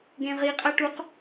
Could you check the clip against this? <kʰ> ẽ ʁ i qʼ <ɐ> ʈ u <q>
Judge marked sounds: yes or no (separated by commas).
no, yes, yes